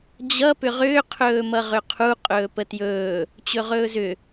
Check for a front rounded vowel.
present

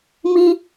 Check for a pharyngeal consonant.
absent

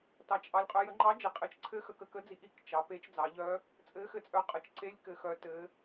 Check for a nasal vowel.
absent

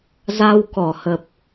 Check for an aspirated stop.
absent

